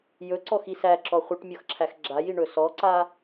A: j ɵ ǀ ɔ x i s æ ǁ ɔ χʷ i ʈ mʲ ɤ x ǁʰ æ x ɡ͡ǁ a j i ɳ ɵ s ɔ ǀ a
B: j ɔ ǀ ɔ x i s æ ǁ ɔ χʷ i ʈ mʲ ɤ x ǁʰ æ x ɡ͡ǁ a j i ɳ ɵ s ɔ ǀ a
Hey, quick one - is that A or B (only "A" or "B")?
A